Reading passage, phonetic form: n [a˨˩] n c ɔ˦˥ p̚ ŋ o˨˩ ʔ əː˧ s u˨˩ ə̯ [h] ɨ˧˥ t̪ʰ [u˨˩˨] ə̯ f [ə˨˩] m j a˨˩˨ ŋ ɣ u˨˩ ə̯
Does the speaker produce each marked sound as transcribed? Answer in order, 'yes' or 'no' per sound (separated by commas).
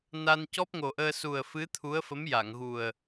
no, no, no, no